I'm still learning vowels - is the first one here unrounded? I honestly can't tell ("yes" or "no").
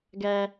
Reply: yes